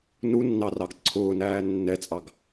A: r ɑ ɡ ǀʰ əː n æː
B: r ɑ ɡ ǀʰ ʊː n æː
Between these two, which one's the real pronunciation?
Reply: B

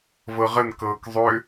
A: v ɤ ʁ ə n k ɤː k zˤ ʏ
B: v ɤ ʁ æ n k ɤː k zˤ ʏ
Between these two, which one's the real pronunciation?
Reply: A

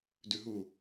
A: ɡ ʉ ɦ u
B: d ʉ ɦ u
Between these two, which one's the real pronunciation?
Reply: B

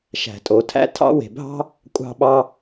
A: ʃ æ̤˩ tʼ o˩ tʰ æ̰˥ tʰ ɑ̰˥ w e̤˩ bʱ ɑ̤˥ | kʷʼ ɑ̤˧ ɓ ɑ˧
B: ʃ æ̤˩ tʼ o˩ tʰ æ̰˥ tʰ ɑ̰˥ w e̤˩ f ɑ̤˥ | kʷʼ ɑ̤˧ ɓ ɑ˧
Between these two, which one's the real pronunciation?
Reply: A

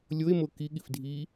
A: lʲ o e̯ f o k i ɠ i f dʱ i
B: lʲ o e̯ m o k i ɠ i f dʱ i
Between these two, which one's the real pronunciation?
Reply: B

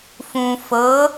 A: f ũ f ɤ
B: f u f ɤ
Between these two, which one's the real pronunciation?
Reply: A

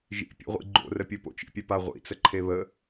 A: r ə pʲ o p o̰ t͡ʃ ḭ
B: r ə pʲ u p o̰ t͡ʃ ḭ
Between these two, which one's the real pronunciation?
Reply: A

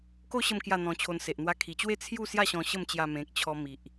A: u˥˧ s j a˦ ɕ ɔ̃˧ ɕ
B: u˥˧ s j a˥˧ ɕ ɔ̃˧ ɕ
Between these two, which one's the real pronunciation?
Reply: B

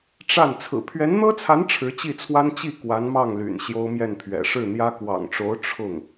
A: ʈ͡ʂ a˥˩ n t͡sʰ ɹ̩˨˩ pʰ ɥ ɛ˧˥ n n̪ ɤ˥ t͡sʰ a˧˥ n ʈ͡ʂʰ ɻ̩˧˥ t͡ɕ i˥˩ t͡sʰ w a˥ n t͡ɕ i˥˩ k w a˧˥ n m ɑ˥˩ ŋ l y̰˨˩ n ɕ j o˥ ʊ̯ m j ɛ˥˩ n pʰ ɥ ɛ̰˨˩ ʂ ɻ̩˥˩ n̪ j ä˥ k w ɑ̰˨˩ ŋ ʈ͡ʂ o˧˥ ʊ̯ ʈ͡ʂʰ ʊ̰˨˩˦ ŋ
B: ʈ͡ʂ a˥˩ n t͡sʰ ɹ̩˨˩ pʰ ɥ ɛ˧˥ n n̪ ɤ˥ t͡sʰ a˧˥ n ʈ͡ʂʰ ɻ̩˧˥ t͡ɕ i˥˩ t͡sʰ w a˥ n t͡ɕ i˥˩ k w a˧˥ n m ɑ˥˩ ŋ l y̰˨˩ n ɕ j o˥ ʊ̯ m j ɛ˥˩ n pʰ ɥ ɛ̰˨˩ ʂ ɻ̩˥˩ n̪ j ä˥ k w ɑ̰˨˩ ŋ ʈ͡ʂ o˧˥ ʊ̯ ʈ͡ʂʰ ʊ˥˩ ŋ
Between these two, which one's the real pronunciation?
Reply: B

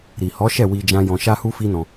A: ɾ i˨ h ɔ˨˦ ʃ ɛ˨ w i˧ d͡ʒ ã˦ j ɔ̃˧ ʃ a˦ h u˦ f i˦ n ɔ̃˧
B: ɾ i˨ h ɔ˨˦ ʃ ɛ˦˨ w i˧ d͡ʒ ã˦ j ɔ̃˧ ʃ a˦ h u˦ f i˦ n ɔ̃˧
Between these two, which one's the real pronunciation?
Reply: B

